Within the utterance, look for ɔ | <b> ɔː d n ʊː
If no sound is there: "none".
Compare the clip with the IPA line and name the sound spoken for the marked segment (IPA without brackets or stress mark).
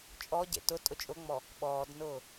ɓ